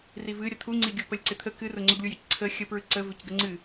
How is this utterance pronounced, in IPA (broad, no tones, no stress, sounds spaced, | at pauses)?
r i v ɨ ɾʲ ə t̪ʰ u ŋ͡ǀ i ɡʲ u p ə lʲ ǀ ɪ t̪ʰ ə k ɨ r ʊ ŋ͡ǀ ʊ ɡ lʲ u j ə c ǀʰ ə xʲ ə p ɹ ɨ ǀ ə v ɪ c ɡ ə ŋ͡ǀ ɨ